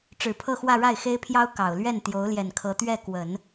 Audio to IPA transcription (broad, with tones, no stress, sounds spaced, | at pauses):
ʈ͡ʂ ɻ̩˨˩ pʰ ɤ˥˧ x w ä˥˧ ɻ a˥˩ ɪ̯ x e˥ ɪ̯ pʰ j ɑ˥ ʊ̯ k ɑ˨˩ ʊ̯ l ɥ ɛ˥˩ n t̪ j o˧˥ ʊ̯ l j ɛ˨˩ n kʰ ɤ˧˥ t̪ ɥ ɛ˥˩ k w ə˨˩˦ n